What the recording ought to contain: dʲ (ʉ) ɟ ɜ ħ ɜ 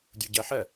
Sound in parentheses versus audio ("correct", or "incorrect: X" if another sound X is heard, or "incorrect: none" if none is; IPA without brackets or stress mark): incorrect: u